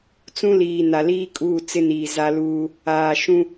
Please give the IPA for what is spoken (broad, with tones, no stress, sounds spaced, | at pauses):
t͡s ũ˦ l iː˨ n a˨ l iː˦ kʼ uː˦˨ t͡s ɪ˦ n iː˨ z a˦ l uː˦ | aː˨ ʃ ũ˦